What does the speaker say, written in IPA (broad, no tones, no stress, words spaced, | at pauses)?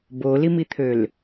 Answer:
bolimit̪ʰøl